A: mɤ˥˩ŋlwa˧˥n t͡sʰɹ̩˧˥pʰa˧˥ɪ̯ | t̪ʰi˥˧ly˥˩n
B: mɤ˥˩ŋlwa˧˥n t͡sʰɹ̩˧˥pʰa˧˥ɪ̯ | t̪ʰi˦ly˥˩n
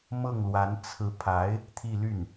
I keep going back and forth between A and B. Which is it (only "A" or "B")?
A